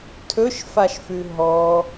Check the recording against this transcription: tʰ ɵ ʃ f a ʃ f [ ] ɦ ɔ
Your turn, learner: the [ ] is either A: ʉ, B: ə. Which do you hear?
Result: A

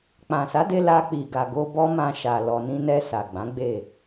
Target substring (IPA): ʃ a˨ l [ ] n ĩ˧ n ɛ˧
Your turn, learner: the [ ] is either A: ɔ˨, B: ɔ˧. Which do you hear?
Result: A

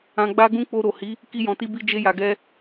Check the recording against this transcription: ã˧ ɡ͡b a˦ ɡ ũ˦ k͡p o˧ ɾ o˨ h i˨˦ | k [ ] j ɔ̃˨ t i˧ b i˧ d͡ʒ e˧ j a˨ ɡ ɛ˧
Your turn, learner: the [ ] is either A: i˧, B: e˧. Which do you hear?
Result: A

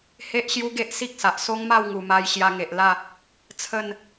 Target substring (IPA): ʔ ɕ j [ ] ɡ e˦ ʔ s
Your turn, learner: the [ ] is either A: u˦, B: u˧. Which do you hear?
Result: A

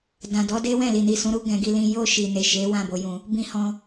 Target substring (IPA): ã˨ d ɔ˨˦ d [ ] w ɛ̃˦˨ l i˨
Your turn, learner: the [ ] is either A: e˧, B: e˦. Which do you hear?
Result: B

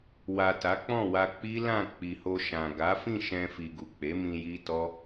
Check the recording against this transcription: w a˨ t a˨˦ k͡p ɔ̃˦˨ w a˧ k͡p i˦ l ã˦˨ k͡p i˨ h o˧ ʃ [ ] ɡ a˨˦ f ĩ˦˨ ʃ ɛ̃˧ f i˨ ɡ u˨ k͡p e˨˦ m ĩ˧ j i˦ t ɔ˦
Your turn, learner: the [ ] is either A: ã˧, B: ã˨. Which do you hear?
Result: B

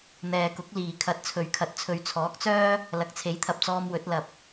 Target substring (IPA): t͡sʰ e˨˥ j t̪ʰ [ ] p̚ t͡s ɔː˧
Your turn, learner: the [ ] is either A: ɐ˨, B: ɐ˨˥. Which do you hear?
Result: A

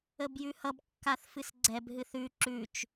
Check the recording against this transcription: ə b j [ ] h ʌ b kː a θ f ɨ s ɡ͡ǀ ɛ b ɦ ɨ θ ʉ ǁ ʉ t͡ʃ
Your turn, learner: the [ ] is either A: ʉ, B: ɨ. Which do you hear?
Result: A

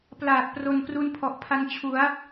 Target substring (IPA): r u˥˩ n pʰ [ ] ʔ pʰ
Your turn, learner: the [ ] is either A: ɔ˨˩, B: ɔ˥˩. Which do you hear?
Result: A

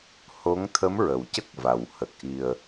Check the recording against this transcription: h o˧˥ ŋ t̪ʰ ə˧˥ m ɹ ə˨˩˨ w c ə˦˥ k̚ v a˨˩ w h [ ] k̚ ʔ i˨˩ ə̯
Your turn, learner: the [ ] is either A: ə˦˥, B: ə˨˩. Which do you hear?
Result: B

